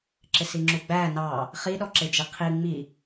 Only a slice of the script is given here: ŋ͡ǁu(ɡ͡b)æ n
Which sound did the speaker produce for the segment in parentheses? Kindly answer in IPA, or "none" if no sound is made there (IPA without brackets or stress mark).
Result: ɡ͡b